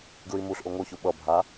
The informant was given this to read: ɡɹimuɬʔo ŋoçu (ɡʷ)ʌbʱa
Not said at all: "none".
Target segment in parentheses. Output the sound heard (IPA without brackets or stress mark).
ɓ